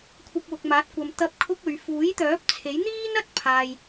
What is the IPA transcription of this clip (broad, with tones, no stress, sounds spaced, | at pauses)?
kʷʰ ɐ˧ p̚ w ʊ˨ k̚ m aː˨˥ t̚ kʷ ɐ˨ m t̪ ɐ˥ p̚ kʰ ʊ˥ k̚ ɵ˨˧ ɥ f uː˨˥ j t̪ œː˨˥ p̚ t͡sʰ e˨˥ j n̪ iː˥ n ɐ˥ t̚ pʰ aː˧ j